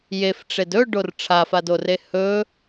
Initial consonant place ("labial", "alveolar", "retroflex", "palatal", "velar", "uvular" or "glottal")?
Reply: palatal